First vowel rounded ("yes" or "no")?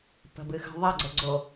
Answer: no